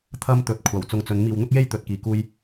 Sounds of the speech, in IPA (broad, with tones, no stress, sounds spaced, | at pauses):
t̪ʰ ɐ˥ m t̪ ɵ˨ t̚ kʷʰ ɐ˨˩ w t͡s ʊ˧ ŋ t͡s ɵ˨˧ n m iː˨ w n̪ ʊ˥ k̚ j e˥ j t̪ ɵ˨˥ t̚ k iː˨ k uː˥ j